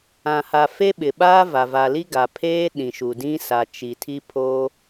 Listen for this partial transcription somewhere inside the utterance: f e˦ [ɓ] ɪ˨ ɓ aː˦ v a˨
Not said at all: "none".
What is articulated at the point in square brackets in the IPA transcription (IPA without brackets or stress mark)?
ɓ